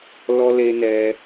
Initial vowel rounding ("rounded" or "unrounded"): rounded